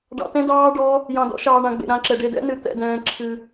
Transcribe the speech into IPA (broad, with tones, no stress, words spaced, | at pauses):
ɖɑ̰˧tɛ̃˦˥dɑː˦˥ ɖɔ˦˥ | jɑ̃˧dɔ̰˦˥ʃɑː˧ ɳã˧ɡ͡bḛ˧ ɾã˦˥ǁɛ˧ ɖe˧dɛ̰˦˥nɨ˧ t̪ɛ̰˧dɛ̃ː˧ ǁʰɨ˧